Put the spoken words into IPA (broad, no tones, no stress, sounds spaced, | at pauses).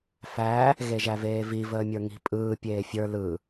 f æ | ɣ e ʒ æ v eː v i v əː mʲ ə˞ ŋ i̤ pʼ ɯː pʲ eː fʲ ə˞ l ɯ